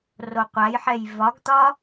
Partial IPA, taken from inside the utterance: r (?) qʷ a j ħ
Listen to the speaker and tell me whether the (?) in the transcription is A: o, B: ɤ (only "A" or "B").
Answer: A